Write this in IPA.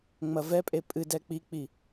ŋ͡mɐvɛpʼe pʼɨdɛ k͡pik͡pi

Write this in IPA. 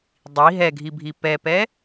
dˤi ɦɛɡʱibʱi pɛpɛ

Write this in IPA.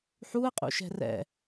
ħuə̯qʼṵʃɛ̤ rɛ̰

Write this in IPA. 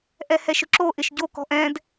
ʔɛhɛʃʊǁo ʔɪʃɟo kɔ̤ʔɛ̃d

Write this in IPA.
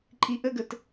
ǃʼiʔəɡət

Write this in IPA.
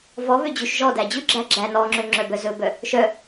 vɔ βød͡ʑʉʃʒɔdæ d͡ʑʉɡ͡ǁæ ɡ͡ǁæ nɔŋ͡ǁø ŋ͡ǁœbœzɵbœ | ʃœ

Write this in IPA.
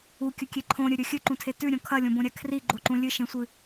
ukʲɵkʲe ǃʰõɾʲɵɾʲɵ xʲɨǃũtʰe tʉɾʲõ kʰɐlʲõbõɾʲa kʰriɡ͡ǃoǃũ lʲɨʃẽsʷɨ

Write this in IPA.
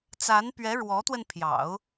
t͡sa˧˥n pɥɛ˧˥ ɻwɔ˧˥t̪wə˧n pʰjɑ̰˨˩˦ʊ̯

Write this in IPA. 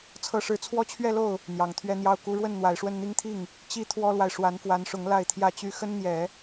t͡sʰɤ˥ʂɻ̩˥˩ t͡sʰwɔ˥t͡ɕʰɥɛ˥˧lo˥˩ʊ̯ | n̪jɑ˨˩ŋt̪ʰɥɛ˥n̪jɑ˥˩ʊ̯ ku˧˥ɻwə˥˩n n̪wa˨˩ɪ̯ʂwə˥˩nn̪i˥ŋt̪ʰi˥˩ŋ | t͡ɕi˥t̪ʰwɔ˥lwa˨ɪ̯ ʂwa˧˥nfwa˧˥nʂʊ˧˥ŋ la˥˧ɪ̯t̪ʰjä˥˩t͡ɕy˥ xə˥nn̪jɛ˨˩˦

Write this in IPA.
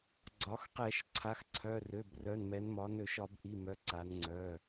ɡ͡ǀɒ˩˧xqɛ˧˩˧ʃ ǀʰa˩˧˩xǀʰœ˩˧˩rø˩˧˩brœ˩˧˩n mɛ˩˧nmɒ˩˧ nø˧˩˧ʃɒ˧˩˧bʔi˩˧˩mœ˩˧ ǀa˩˧nŋ͡ǀœ˩˧˩

